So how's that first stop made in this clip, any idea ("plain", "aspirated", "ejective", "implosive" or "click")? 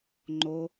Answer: click